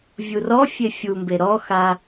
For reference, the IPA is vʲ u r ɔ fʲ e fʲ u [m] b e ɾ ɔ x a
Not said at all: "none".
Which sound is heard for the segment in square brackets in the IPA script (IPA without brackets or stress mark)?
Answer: m